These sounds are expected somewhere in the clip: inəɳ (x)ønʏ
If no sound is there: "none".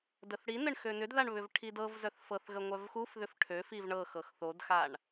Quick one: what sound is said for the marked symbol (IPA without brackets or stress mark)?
x